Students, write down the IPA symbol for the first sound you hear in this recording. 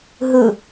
ɦ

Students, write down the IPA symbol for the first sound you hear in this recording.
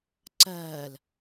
ǀ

